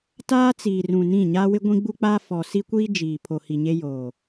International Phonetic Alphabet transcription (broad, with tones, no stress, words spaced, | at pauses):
taː˦t͡siː˨rũ˨ nĩ˦˨ ɲaː˦wɪ˦ ɡʷĩ˦ɡ͡bu˦k͡paː˦ fɔ˨ si˦kʷiː˦ d͡ʒiː˨ pʰo˨hi˨ɲe˦ joː˨